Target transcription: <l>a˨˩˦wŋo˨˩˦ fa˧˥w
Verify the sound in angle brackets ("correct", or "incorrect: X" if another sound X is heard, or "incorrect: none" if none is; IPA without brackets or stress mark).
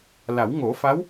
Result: correct